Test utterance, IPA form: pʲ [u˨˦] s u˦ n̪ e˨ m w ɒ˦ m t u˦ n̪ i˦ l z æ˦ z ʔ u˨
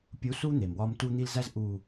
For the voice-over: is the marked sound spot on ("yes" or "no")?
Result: yes